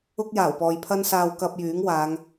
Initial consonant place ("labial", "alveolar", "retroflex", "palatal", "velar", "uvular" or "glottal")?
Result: velar